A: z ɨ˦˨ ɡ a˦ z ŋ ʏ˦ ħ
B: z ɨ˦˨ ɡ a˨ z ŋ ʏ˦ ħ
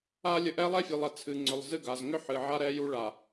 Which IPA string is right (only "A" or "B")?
B